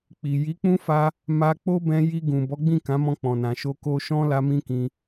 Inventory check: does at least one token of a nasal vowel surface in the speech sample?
yes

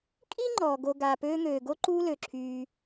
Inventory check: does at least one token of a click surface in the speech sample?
yes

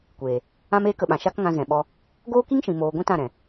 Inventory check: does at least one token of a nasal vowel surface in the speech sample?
yes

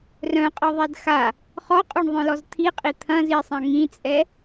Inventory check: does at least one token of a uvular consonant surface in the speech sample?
yes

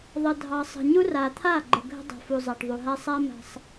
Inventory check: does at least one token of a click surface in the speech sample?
yes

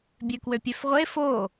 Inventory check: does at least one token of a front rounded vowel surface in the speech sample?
yes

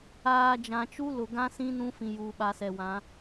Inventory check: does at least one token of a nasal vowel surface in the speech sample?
yes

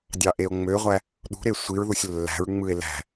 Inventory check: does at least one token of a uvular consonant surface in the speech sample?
yes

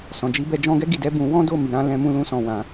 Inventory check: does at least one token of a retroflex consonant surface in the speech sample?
no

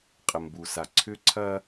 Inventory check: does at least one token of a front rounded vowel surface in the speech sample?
yes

